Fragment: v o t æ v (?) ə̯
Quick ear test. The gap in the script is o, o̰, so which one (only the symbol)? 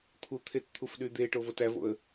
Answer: o̰